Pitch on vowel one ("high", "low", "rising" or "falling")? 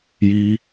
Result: high